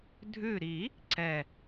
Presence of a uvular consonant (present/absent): absent